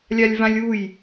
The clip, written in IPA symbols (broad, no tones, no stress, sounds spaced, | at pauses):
lʲ a lʲ v ã lʲ u j